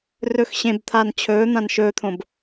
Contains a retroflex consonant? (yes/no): no